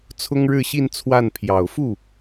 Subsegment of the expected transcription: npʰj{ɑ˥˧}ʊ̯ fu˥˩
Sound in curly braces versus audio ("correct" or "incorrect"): incorrect